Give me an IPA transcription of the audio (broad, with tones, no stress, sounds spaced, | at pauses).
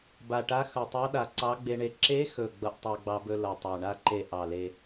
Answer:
b a˨˩ ʈ a˧˥ x ʌ˨˩ tˤ ɑ˧˥ ɗ a˨˩ ǀ ɑ˧˥ ɡ͡b e˧ ɳ e˧ ǁ e˧˥ x ɵ˨˩ ɡ͡b ʌ˧ ʔ tˤ a˧ ɡ͡b ɑ˧ b ɵ˧ l ʌ˨˩ tˤ ɑ˨˩ ɳ a˧ ǃ e˨˩ ʔ ɑ˨˩ l e˧